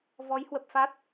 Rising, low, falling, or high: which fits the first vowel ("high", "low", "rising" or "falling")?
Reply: rising